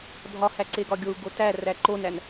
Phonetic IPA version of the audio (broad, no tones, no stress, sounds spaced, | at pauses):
dʱ ɒ h æ ǀ e ɡ ɒ ɡʲ o u̯ ɡ o t æ r æ ǃ o n æ n